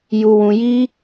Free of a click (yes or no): yes